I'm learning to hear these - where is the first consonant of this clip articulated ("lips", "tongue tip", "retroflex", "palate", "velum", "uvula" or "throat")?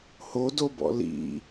throat